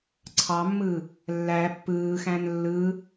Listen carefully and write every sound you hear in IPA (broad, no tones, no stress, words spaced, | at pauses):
ǀʰɑmːɯ | lːæ pːɯːxæ̃n lːɯ